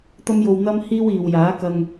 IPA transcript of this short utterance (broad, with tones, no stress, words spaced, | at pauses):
t̪ɐ˥mjo˧w n̪ɐ˥m hiː˥wiː˨w jaː˨˥kɐ˧ŋ